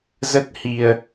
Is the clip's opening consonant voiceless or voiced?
voiced